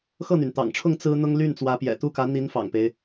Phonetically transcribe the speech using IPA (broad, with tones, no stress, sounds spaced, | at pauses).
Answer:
x ɤ˥˩ n̪ y˩ n t̪ ɑ̰˨˩ ŋ ʈ͡ʂʰ ʊ˥˩ ŋ t͡s ɹ̩˥ n̪ ʊ˥ ŋ l y˥˩ n t͡s w ä˧˥ p j ɛ̰˨˩ t̪ u˥˩ k ä˧˥ n̪ i˧˥ n f ɑ̰˨˩ ŋ p e˦ ɪ̯